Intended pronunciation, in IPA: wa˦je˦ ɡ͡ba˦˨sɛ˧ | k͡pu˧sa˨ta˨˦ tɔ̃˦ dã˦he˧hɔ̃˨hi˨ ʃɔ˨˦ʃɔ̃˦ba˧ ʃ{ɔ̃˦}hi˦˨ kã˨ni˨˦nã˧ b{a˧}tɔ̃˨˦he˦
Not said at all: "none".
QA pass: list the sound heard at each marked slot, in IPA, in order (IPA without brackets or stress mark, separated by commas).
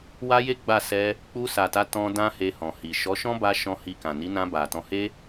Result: ɔ̃˦, a˨